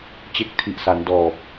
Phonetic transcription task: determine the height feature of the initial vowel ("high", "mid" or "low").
mid